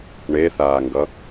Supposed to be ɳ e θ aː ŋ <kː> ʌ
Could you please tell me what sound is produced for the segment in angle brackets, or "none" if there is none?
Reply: ɡ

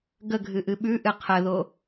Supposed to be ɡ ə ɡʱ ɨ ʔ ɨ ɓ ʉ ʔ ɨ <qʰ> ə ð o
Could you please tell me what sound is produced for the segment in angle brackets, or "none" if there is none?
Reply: qʰ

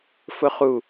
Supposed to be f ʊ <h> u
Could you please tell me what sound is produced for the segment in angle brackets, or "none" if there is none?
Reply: χ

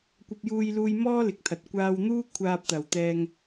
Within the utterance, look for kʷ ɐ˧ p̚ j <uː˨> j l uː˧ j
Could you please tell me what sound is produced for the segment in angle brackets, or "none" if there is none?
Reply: uː˧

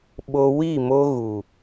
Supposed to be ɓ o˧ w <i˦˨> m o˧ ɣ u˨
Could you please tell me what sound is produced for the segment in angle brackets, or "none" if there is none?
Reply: i˦˨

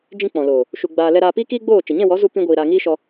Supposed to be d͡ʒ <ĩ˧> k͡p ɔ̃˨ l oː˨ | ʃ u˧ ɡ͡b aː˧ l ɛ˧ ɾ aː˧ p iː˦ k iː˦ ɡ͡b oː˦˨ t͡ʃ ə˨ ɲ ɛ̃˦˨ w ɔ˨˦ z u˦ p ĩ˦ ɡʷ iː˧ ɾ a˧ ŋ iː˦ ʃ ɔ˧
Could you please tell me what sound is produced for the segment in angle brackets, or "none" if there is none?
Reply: ĩ˧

